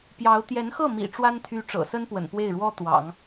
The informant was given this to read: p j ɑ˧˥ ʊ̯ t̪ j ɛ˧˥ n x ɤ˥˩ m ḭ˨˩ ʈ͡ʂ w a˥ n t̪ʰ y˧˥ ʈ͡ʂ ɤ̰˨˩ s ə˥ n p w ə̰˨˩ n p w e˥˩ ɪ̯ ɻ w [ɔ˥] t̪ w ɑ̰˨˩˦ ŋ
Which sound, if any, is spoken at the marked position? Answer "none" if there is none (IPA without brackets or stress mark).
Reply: ɔ˥